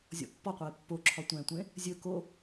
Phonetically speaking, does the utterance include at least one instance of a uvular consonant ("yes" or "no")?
yes